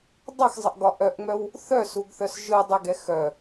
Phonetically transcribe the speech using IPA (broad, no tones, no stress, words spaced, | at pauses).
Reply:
dˤʌxzˤəʔɡɒ ʔœʔŋ͡mœw | θœsuɡθœs ʒɯdˤəɡɛ xœ